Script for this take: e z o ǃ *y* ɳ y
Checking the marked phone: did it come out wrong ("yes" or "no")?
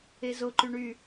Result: no